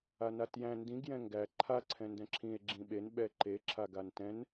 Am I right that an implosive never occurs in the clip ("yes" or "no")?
no